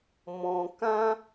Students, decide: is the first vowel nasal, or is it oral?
nasal